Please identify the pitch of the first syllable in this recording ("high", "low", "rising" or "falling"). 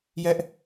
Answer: high